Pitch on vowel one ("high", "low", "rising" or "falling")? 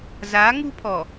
rising